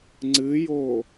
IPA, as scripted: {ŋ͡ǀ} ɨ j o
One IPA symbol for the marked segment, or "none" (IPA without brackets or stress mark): ŋ͡ǀ